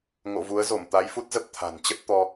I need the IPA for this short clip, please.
ŋ o̰˧˨ v u˨˦ ə̯ z o˧˩ m t̪ a˨˦ j f u˦˥ t̚ z ə˦˥ p̚ t̪ʰ a̤˨˩ n t͡ɕ ə˦˥ t̚ t̪ ɔ˧

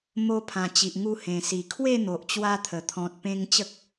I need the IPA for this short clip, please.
m o˧ pʰ ã˨˩ t͡ɕ i˨ ʔ ŋ u˧ h ẽ˨˩ s i˨˩ kʰ w e˥˧ n̪ o˨ ʔ t͡ɕ w a˧ t̪ʰ ə˨˩ t̪ʰ ɔ̃˨ t̚ p ẽ˧ ŋ t͡ɕ ə˦ k̚

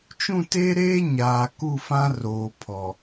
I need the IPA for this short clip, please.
t͡ʃ ũ˦˨ t e˦ ɾ eː˦ ɲ aː˨ k u˦˨ f ã˦ r oː˨ pʰ ɔ˨

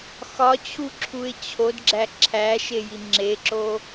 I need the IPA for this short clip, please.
x ɒ t͡ɕʰ u ǁʰ u ɪ̯ t͡ɕʰ o d ɡ͡ǁ æ ǁʰ æ ʃ e j i ŋ͡ǁ e ǁ o

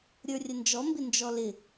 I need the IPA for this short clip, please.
ɾʲ ə˞ rʲ ə n d͡ʒ ɔ m b ɪ n d͡ʒ ɔ l ɪ

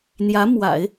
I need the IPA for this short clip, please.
n̪ j ä˧˥ m w a̰˨˩˦ ɪ̯

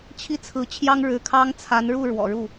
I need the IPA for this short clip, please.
t͡ɕʰ i˥˩ t͡sʰ ɹ̩˧˥ t͡ɕʰ j ɑ˥ ŋ ɻ ɻ̩˧˥ kʰ ɑ˥ ŋ t͡sʰ a˧˥ n ɻ u˥˩ ɻ w ɔ̰˨˩ ɻ u˥˩

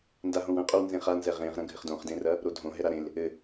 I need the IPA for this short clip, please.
n d a ɦ õ w ɐ̃ qʼ o w n z ẽ χ a n z ɛ ʁ ẽ ʁ ɾ ɐ̃ ɡʱ ɘ χ d õ χ d ẽ r ɐ | ɾ o dʱ õ ɦ ɛ ɾ a ɾ ẽ l | ɘ

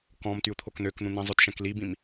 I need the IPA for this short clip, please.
k ɔ̃ m t y u̯ t̪ʰ o k n̪ ø k n̪ ũ n̪ ĩ zˤ ʊ t ʃ ɛ̃ k l i b ĩ m

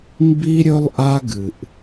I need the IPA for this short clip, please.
m b i˦ ɾʲ ɵ˦ lˠ ʔ a˦ ɡ ɨ˨ ʔ

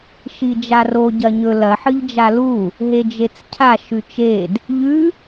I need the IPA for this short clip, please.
ʃ i d͡ʒ a r o ɟ ɐ ɲ ɵ l ɐ ħ ɨ ʎ d͡ʒ a l u | ɦ e d͡ʒ e t͡s cʰ a ʃ ʉ t͡ʃ e d | ʎ ʉ

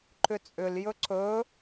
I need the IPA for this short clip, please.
ǃ ʏ t͡sʼ ʏ l j ɵ ǀ ɵ

